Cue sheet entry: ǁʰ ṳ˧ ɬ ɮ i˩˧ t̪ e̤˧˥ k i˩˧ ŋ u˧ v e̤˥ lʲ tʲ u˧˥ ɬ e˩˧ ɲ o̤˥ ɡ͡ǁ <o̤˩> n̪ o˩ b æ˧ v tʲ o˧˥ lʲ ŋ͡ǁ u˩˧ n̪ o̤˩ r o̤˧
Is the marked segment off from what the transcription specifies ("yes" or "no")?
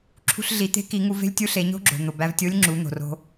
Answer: no